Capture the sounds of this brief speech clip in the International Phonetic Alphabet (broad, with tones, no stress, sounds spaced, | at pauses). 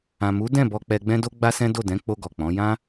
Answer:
ã˨ m u˨˦ d ɛ̃˦˨ b ɔ˧ k͡p ɛ˧ ɡ͡b ɛ̃˦ d o˦ ɡ͡b a˦ s ɛ̃˦ d o˦˨ d ɛ̃˨˦ k͡p o˧ ɡ ɔ˨ k͡p ɔ̃˨˦ j ã˦